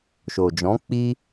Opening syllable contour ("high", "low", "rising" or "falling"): low